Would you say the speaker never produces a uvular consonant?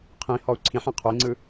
no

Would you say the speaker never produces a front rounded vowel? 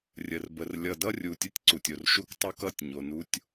yes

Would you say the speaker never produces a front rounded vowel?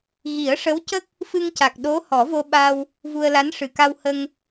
yes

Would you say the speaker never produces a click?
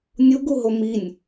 yes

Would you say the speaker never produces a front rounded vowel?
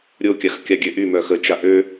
no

